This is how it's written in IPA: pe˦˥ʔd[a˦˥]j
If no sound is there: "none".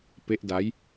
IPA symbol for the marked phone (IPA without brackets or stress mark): a˦˥